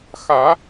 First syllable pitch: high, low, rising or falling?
rising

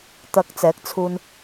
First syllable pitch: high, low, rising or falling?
low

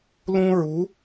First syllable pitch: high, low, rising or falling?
high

